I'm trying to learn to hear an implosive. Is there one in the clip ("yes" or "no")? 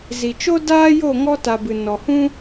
no